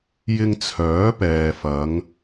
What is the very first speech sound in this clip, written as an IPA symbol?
j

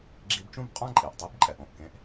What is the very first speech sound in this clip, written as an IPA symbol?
ɡ͡ǁ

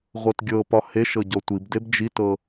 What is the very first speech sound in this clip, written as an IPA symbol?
ʁʷ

